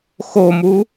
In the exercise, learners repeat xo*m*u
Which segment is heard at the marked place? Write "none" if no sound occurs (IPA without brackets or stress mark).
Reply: m